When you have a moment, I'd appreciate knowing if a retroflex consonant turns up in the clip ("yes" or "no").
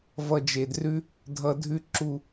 no